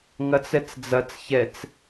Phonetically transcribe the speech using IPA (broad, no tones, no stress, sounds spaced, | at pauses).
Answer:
ŋ ɐ t͡s ɛ t͡s d͡z ɐ t͡s ç ɛ t͡s